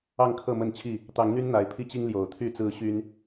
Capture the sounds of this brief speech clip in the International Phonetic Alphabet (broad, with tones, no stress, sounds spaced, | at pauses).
ɑ˥˨ ŋ kʰ ɤ˥˨ m ə˥˨ n t͡ɕʰ i˥˨ | t̪ ɑ˨˦ ŋ n̪ y˦ n n̪ a˨˦ ɪ̯ pʰ i˦ t͡ɕ i˦ ŋ l j o˨˩ ʊ̯ t̪ʰ y˥˨ t͡s ɹ̩˦ ɕ y˦ n